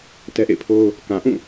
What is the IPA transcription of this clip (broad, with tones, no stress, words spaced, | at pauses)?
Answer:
tɛ˦ʔḛ˦˨ɪ̯ pʰo˦ʊ̯ | kã˨ʔũ˦˨